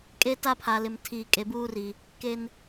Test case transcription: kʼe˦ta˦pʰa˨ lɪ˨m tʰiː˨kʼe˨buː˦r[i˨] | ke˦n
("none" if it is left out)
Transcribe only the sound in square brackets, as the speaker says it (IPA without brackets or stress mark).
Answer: i˨